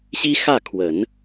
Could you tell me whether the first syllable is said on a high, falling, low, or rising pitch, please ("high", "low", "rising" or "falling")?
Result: high